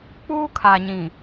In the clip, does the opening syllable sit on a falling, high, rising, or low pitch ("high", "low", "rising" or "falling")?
high